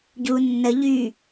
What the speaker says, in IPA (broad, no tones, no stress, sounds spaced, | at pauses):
ɟ u nː ə ʎ y